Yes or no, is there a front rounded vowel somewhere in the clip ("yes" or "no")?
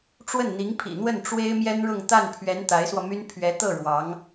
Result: yes